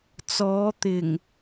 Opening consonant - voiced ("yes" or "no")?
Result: no